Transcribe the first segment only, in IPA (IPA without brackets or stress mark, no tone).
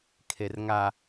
kʰ